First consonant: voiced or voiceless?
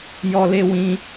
voiced